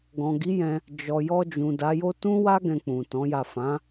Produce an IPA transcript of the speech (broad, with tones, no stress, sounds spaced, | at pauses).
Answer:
ɡ ɔ̃˨ ɡ i˨˦ j ɛ̃˧ | d͡ʒ ɔ˧ j ɔ˧ d͡ʒ ũ˨ d a˨˦ j o˦ t ũ˦ w a˦ ɡ ɛ̃˧ k͡p ũ˨ t ɔ̃˨˦ j a˦˨ f ã˨˦